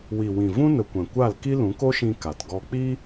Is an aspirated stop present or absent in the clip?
absent